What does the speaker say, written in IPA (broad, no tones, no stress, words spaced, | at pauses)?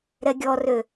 ɾɛɡʲɔrø